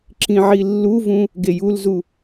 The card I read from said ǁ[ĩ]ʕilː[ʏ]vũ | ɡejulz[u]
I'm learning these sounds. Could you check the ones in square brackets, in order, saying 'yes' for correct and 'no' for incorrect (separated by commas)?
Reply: yes, no, yes